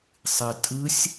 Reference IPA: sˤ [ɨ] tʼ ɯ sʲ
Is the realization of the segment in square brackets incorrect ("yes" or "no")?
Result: no